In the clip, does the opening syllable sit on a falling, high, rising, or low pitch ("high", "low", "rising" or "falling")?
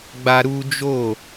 high